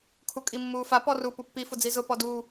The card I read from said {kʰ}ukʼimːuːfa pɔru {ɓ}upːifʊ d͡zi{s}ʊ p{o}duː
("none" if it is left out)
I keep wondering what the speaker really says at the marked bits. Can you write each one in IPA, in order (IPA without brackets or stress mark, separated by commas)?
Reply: kʰ, p, z, ɔ